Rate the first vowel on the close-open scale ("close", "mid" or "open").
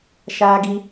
open